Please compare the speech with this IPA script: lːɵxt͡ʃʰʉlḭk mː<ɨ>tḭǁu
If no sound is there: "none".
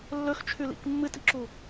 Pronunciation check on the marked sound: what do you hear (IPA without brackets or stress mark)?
ɨ